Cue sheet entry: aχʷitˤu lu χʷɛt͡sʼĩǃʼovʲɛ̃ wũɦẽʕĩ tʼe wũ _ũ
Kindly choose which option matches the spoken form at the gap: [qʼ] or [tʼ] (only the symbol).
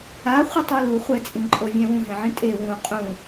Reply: qʼ